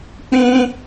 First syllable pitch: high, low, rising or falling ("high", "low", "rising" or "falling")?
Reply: high